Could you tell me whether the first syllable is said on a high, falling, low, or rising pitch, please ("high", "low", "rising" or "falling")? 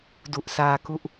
low